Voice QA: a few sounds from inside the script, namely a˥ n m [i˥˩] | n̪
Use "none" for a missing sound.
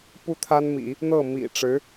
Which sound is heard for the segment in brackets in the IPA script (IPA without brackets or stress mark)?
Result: ḭ˨˩˦